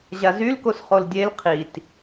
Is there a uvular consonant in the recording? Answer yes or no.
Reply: yes